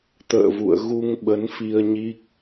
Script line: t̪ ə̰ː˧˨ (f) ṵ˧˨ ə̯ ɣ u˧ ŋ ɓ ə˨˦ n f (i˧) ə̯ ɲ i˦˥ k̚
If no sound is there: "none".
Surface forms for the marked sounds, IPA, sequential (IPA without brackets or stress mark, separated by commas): v, i˧